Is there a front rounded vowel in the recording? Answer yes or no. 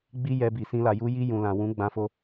no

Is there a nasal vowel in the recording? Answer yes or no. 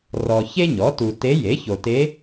no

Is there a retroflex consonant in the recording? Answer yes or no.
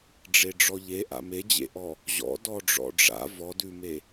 yes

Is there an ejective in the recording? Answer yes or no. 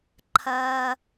no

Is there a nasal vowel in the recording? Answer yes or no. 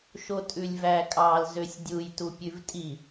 no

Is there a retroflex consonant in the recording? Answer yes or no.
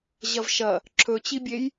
no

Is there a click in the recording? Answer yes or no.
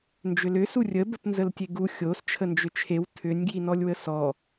no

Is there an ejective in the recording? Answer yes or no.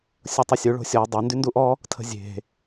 no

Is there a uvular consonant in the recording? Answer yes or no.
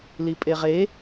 yes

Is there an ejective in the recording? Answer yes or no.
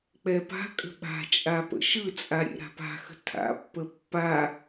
yes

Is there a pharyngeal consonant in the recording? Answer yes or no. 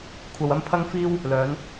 no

